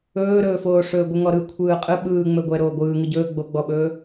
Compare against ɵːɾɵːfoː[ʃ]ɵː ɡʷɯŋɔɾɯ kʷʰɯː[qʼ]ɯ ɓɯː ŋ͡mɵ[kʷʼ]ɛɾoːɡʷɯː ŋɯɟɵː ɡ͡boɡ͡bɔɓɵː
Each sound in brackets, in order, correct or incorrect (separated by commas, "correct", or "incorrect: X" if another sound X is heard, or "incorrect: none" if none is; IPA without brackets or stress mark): incorrect: ʂ, correct, incorrect: ɡʷ